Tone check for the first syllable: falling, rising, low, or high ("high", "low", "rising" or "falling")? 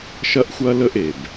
high